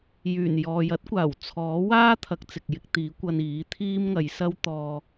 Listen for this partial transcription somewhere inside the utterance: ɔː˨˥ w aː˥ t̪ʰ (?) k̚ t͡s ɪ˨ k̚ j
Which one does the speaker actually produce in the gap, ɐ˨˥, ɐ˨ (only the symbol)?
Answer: ɐ˨˥